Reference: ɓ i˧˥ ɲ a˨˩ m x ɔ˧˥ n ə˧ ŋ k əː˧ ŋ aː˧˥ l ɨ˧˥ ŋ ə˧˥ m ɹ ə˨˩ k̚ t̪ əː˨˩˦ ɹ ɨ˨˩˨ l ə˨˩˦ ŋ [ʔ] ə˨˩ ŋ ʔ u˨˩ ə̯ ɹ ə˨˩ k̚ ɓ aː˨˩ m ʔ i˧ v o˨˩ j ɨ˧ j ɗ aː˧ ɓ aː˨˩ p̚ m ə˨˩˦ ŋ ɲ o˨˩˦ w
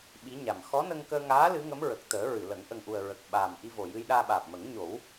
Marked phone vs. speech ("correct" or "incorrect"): correct